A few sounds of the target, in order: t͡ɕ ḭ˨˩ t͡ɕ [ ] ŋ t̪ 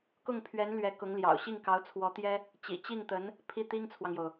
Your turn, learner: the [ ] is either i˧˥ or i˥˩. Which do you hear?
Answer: i˥˩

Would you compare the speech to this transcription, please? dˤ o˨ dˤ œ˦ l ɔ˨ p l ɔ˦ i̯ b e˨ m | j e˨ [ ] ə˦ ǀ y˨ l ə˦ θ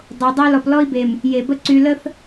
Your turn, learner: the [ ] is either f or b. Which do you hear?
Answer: b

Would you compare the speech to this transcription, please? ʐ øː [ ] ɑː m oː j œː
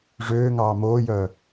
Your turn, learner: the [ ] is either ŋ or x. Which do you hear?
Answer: ŋ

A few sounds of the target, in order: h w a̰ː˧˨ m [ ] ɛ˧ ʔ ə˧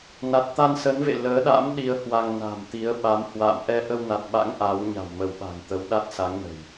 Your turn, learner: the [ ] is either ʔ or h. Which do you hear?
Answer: ʔ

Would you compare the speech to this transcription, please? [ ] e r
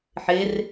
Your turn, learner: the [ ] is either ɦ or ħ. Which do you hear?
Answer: ħ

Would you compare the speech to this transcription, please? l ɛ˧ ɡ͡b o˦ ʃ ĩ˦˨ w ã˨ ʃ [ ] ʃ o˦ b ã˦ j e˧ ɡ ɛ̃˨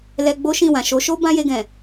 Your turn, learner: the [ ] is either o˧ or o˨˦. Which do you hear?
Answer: o˨˦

